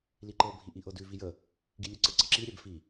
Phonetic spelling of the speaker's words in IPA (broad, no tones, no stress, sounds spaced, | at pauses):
l i ǃ ɤ bʱ i ʔ i ʔ ɤ d ʉ v i j ə | ɡ i lʲ ʉ ǀ ə ǀ ə ǁ i ɾʲ ɛ b f i